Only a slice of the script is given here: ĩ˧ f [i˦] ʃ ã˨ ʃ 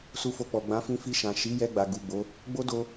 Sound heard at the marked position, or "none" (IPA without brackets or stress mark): i˧